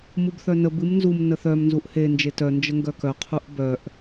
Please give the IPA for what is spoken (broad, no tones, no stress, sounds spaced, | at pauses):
m u b θ œ n ə b ɨ m n z u m n ə θ œ m n z u ʔ h e n d͡ʒ e t œ n d͡ʒ ə ŋ ɡ œ k œ qʰ u ʔ b œ ʔ